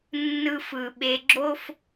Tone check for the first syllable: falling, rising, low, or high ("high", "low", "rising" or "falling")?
high